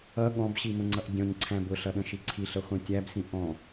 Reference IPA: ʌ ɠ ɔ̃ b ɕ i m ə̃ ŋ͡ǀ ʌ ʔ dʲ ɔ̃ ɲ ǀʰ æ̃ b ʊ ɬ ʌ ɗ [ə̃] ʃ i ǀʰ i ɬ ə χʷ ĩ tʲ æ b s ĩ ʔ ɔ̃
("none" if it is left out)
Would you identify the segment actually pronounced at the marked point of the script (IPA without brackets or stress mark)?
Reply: ə̃